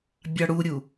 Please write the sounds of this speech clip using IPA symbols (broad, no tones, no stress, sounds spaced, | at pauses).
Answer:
bʲ ɑ ɽ u ɾʲ u